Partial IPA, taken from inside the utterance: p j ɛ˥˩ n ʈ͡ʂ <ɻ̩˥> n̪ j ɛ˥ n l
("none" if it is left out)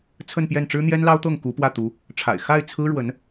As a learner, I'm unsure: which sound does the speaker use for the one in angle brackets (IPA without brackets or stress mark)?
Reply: ɻ̩˥